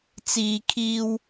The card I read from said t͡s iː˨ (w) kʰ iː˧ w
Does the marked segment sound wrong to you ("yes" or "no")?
yes